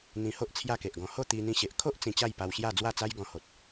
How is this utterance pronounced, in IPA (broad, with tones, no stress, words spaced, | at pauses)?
n̪ĩ˧ho˦ʔ t͡sʰja˥˧ke˨ʔɡɔ̃˧ ho˥˧t̪i˧n̪ĩ˧ɕe˨ʔ kʰo˦ʔ t͡sĩ˧t͡ɕa˥˧jpa˧wɕja˥˧ d͡zwa˥˧t͡sa˦j ɡɔ̃˧ho˨t̚